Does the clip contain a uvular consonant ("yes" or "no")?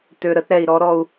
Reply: no